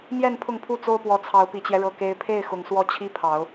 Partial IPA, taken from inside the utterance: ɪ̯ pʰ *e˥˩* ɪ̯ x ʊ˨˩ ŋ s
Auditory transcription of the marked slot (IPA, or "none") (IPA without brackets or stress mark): e˥˩